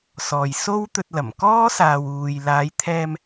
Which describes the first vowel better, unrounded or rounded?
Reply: rounded